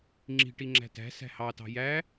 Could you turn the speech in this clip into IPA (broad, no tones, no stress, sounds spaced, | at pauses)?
ŋ͡ǁ i̤ ʈ i ŋ͡ǁ æ̤ t æ̤ s æ̤ h ɑ t ɑ̤ j æ